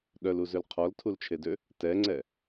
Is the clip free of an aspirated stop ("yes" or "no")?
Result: no